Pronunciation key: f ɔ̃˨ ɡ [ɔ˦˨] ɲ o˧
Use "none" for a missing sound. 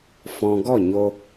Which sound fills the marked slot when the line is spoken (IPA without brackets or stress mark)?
ɔ˦˨